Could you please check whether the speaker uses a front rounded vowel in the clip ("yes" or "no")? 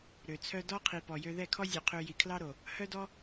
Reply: yes